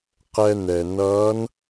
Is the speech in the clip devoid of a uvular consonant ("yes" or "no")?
no